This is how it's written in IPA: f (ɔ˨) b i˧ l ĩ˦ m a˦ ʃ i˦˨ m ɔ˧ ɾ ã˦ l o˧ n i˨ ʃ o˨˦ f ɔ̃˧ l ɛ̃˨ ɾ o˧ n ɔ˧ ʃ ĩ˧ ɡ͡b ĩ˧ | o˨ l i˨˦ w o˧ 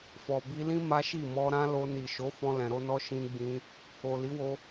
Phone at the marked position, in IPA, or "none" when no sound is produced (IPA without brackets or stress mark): ɔ˨